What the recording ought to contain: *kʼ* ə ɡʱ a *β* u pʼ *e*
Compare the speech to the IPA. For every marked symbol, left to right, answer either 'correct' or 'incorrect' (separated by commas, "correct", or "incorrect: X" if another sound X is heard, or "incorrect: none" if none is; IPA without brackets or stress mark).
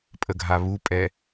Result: incorrect: pʼ, correct, incorrect: ɛ